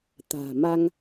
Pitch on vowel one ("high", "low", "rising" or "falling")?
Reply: low